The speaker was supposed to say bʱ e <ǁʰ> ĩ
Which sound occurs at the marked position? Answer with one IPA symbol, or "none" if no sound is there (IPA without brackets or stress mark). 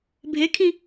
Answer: kʰ